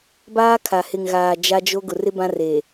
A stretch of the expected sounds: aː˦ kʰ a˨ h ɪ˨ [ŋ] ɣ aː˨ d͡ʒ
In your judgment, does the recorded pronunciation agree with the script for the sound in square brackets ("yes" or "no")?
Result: yes